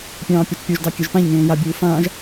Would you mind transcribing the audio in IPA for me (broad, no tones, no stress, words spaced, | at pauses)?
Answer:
pʲɑ̃ːpʲat͡ʃpʲoʒ dɑkʲɘʒpãʎŋẽː jabʲuː fãːʒ